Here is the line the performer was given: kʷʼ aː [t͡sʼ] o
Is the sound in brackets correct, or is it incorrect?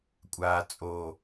correct